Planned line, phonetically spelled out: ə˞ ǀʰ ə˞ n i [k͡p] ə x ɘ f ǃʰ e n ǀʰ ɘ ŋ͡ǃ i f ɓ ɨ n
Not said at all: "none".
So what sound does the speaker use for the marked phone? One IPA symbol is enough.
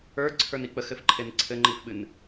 k͡p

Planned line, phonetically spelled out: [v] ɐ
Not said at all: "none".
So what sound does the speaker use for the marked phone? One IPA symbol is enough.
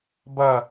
b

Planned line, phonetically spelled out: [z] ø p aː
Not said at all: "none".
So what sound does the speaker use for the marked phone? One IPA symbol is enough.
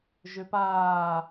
ʒ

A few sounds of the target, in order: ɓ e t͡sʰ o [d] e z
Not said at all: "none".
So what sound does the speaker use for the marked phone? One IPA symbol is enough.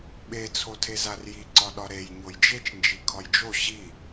tʰ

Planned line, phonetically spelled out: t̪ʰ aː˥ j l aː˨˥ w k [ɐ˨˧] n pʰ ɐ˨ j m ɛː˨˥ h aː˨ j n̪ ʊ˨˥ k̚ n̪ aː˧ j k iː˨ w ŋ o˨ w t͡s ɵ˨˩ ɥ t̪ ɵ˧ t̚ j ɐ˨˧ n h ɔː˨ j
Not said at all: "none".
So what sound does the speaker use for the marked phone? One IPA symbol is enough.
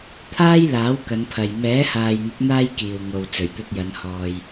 ɐ˨˧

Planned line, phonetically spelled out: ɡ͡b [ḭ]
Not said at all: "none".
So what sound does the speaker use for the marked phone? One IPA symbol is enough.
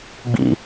ḭ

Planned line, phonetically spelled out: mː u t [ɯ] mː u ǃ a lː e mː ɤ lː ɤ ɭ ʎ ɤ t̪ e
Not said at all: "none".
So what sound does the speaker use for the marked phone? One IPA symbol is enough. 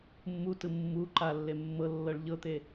ɯ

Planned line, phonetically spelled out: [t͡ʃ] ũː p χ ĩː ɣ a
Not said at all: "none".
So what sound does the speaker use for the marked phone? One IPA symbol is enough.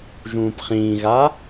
ʒ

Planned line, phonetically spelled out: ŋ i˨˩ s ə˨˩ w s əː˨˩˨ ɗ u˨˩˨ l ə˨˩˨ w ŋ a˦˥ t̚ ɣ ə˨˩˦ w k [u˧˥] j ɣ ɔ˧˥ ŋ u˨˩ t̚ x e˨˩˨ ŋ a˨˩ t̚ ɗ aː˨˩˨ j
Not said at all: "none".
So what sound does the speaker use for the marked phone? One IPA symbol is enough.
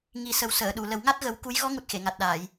u˧˥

